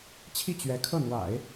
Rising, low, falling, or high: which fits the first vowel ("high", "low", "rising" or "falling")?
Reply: falling